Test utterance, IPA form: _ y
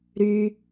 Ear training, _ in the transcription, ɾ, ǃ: ɾ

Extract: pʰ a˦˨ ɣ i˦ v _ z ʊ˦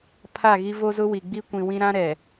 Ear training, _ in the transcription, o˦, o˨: o˦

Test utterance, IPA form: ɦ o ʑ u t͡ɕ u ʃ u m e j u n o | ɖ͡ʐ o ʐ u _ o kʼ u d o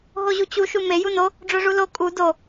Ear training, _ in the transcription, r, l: l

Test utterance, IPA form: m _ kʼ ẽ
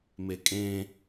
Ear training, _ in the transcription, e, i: e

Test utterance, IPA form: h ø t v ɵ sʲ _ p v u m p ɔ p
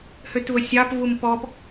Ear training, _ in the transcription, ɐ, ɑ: ɑ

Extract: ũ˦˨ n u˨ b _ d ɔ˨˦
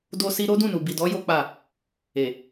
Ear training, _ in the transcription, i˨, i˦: i˨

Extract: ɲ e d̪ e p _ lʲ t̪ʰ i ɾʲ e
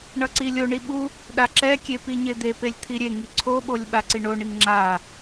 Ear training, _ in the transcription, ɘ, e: e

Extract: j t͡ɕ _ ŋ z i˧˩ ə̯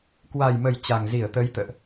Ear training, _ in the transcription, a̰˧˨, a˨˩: a˨˩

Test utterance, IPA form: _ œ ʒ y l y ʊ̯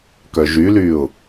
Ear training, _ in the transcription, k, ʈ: k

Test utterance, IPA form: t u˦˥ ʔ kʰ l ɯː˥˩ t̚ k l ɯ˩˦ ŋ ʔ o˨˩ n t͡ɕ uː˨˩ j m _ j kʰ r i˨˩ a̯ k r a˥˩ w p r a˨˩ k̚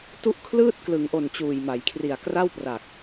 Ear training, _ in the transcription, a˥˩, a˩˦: a˩˦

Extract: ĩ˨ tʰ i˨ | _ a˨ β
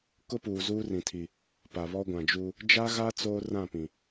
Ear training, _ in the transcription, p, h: p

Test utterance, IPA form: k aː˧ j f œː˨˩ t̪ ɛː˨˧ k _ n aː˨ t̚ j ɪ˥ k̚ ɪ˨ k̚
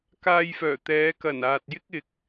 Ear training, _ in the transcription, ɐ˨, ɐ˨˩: ɐ˨˩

